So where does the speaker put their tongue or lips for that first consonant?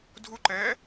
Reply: tongue tip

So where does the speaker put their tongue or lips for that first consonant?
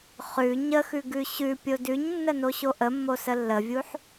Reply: uvula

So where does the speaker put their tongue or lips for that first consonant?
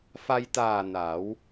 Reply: lips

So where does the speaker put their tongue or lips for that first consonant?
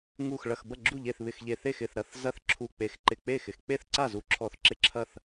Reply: velum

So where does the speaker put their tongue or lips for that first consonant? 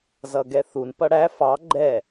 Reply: tongue tip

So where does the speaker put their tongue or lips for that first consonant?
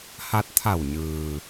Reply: throat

